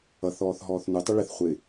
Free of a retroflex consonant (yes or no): no